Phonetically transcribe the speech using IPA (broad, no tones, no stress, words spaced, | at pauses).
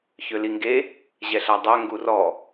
çøliŋɡe | ʑɛɬadˤœ ŋɡurɔ